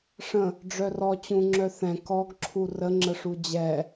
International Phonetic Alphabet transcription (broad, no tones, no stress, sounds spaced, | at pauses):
ʂ ə̃ | ɖ͡ʐ œ r ɔ t͡ɕ ũ ŋ͡ǁ œ θ ɛ̃ k ɔ ɡ ǁʰ u r ə ŋ͡ǁ ə ʂ u d͡ʑ ɛ